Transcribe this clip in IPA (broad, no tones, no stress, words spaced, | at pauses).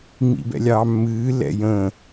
ŋ͡mḭbɛ̰lʲɑːmːɨː lɛ̰jə̃